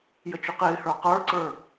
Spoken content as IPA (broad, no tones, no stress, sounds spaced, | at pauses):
j ə t͡ʃ ʊ q ɪː h ə˞ q ə˞ ǀ ə˞